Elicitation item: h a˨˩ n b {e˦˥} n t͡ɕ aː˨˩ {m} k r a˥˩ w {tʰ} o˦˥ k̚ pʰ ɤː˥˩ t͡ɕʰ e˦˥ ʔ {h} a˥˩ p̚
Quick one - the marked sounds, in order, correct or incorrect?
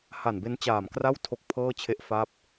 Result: correct, correct, correct, incorrect

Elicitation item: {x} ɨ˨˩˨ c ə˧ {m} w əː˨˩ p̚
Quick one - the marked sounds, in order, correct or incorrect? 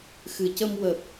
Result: correct, correct

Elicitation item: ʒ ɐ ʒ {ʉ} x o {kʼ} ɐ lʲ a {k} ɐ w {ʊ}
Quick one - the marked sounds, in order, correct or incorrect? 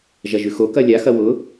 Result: correct, incorrect, incorrect, correct

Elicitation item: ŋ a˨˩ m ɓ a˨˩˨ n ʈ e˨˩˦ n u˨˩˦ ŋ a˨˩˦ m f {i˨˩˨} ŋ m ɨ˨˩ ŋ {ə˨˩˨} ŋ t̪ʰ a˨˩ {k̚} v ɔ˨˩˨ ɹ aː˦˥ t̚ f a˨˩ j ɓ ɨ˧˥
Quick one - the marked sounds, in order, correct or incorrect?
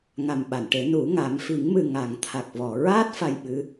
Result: incorrect, incorrect, correct

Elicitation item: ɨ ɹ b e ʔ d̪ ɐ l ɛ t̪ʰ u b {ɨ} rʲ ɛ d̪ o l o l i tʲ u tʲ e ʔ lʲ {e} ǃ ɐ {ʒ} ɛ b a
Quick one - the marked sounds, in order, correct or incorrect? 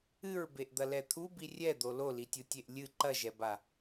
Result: incorrect, incorrect, correct

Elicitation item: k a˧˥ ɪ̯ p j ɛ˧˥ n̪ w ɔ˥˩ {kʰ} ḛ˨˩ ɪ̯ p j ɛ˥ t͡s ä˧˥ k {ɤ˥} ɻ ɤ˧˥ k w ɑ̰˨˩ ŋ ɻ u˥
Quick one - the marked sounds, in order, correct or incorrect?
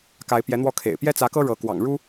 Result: correct, correct

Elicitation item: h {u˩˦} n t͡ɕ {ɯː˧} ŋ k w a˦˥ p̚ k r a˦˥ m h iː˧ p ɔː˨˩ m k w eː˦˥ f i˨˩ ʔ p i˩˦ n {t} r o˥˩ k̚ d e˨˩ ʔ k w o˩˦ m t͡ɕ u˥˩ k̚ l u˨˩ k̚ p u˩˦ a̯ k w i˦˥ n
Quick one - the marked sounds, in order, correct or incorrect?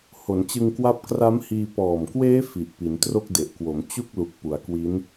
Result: incorrect, incorrect, correct

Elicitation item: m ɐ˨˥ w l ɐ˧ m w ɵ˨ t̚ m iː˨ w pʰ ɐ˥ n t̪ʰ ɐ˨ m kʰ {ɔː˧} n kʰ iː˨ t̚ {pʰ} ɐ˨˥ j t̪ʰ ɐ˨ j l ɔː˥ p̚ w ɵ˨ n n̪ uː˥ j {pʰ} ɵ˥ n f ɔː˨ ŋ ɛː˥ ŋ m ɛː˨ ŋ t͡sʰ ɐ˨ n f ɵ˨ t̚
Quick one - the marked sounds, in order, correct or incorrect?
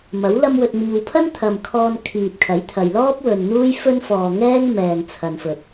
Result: correct, incorrect, incorrect

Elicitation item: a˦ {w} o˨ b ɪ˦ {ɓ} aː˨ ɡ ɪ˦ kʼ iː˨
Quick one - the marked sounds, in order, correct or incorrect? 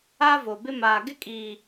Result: incorrect, incorrect

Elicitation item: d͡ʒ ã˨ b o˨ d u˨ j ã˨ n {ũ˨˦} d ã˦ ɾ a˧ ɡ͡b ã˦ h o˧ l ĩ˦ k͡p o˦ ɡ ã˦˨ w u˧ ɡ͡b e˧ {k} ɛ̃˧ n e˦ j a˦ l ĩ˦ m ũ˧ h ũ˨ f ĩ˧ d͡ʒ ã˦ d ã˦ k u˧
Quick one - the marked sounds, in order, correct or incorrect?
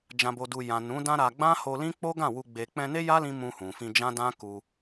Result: correct, incorrect

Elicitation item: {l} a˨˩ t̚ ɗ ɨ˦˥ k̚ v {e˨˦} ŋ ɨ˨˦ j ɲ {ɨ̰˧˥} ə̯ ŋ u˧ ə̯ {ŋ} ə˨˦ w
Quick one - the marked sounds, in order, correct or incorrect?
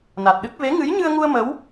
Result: incorrect, correct, incorrect, incorrect

